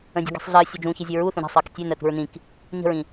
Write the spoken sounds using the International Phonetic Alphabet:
ə̃ dʲ ṳ ɡ e̤ sˤ ɮ ɜ sʲ ɵ d͡ʒ ũː ç i zʲ ø ɹ u θ ũ ɾ e̤ sˤ ɜː k tʲ ø n ɜ t ṳ ɹ n ĩ k | ɲ ə̤ ɹ ĩ

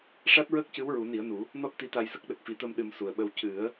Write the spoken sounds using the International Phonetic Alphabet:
ʂ a˦˥ t̚ ɹ əː˦˥ k̚ c ɨ˧˥ w ɹ u˨˩˦ n i˨˩˦ ə̯ n u˨˩˦ | n ɔ˦˥ t̚ t̪ i˧˥ t̪ a˧ j s ə˦˥ k̚ ɗ ə˨˩ k̚ f i˨˩˦ t̪ əː˧ m ɗ ɨ˧ m s u˨˩ ə̯ ɓ ə˧ w c ɨ˨˩˦ ə̯

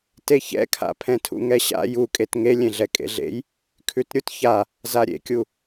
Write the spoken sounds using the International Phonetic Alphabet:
t e ç ɛ̰ kʰ a̰ pʰ ɛ̃ tʰ ṵ ŋ ɛ ɕ a̰ j u kʼ e t ŋ e lʲ ẽ ɮ ɛ kʼ ḛ ɮ ḛ j | kʰ ʉ t ɾʲ u t ç a | z a ɾʲ ḛ kʲ u

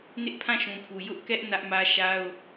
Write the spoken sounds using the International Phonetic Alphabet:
n ɪ˦ ʔ pʰ ã˦˨ ʃ ũ˨ pʰ u˨ j ʊ˦ ʔ k ɛ˦ ʔ n ä˦ ʔ m ä˦ ʃ a˦ ʊ̯

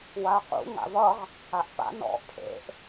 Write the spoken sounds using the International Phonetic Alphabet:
w a q ṵ ŋ a̰ v ʌ ʁ | a ʔ p a̰ n ɔ̰ pʰ ḛ ʔ

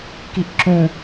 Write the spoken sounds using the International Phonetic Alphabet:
k i ʔ ǁ ũ

